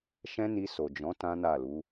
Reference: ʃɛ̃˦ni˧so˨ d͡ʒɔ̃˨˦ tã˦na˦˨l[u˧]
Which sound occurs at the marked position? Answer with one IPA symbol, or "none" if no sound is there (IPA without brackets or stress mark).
u˨˦